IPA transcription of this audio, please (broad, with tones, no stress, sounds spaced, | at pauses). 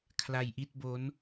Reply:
kʰ l a˧ j ʔ i˥˩ t̚ b o˦˥ n